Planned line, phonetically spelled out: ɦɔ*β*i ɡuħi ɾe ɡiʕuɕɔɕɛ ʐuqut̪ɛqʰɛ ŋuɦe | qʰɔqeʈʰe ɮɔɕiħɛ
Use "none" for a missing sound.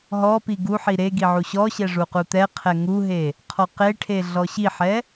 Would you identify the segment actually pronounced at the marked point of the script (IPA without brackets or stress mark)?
p